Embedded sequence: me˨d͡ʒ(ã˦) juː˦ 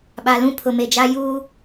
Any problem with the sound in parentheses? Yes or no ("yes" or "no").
yes